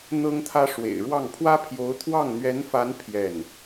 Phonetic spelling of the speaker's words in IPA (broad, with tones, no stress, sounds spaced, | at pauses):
n̪ ɤ˥ ŋ t̪ʰ ä˥ ʂ w ḛ˨˩ ɪ̯ ɻ w ɑ˥˩ ŋ pʰ w ä˥ pʰ j o˧˥ ʊ̯ t̪ʰ w ɑ˥˩ ŋ n̪ ɥ ɛ˧˥ n f a˧˥ n pʰ j ɛ˥˩ n